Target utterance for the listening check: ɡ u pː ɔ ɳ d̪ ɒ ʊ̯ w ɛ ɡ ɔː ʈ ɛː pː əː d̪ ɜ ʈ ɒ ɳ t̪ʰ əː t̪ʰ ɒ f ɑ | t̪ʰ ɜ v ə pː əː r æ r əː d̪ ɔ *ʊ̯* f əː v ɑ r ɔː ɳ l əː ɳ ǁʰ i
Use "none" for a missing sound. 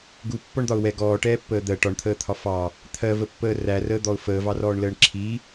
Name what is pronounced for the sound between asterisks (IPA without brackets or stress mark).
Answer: ʊ̯